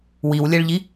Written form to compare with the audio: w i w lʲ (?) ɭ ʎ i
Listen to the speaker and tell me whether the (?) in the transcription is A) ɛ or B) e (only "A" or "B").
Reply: A